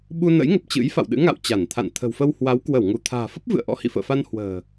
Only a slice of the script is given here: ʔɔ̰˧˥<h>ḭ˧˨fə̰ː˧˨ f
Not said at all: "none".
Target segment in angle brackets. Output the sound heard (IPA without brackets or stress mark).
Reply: h